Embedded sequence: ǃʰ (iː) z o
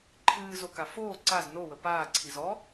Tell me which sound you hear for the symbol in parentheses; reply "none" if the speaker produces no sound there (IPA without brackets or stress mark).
ɨː